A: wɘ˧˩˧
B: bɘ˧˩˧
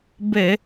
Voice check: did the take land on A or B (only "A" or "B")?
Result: B